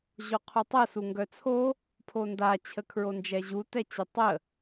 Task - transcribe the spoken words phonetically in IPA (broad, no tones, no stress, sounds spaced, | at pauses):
ʑ o qʰ u tˤ ə s u ŋ ɡ œ t͡sʰ o | pʰ o n d a t͡ɕʰ ə kʰ ɹ o n d͡ʒ ɛ ʑ u t ɛ t͡ɕ ɛ tˤ ə